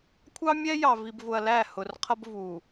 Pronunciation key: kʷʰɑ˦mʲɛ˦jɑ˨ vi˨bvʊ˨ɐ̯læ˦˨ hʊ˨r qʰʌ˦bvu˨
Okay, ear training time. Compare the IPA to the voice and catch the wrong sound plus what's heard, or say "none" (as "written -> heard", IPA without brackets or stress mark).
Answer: none